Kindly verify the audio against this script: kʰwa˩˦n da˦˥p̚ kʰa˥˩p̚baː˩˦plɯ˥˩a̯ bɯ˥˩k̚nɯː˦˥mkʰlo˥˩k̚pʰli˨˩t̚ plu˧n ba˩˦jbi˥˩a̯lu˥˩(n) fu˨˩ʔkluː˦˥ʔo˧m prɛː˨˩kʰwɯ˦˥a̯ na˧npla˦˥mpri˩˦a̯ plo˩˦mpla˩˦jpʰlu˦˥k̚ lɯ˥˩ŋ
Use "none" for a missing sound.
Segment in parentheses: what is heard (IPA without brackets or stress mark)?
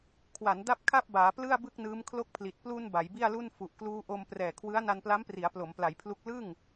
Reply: n